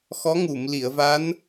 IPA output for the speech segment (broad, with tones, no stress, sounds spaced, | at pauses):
x ɔ˧˥ ŋ u˨˩˨ m l i˨˩˨ ə̯ v a˧˥ n